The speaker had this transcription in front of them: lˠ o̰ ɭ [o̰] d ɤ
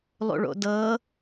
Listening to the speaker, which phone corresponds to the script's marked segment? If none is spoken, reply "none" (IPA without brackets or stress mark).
o̰